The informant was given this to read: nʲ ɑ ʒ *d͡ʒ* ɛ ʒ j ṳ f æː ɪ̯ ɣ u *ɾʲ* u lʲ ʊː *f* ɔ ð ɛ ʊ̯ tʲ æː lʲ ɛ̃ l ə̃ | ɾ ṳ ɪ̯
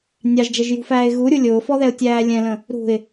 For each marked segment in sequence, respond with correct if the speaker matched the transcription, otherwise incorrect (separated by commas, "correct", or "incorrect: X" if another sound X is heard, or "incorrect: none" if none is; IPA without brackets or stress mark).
correct, correct, correct